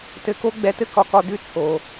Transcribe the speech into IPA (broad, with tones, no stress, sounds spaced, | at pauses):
t ɘ˧ k o˥ ɡ͡b ɛ˧ t ɘ˥ k ɒ˧ k ɒ˧ d ʉ˧ t͡sʰ o˩